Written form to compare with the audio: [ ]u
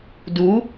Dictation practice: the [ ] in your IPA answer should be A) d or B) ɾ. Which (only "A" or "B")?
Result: A